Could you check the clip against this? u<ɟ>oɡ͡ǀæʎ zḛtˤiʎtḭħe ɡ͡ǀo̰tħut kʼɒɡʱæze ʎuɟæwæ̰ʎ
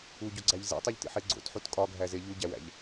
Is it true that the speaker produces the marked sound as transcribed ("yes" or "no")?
yes